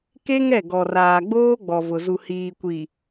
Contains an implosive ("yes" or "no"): no